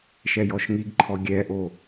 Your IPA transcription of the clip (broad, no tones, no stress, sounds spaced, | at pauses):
ʃ ɛ j ɔ ʃ ŋ i ɡ ǃʰ ɔ ɡʲ ɛ ʔ o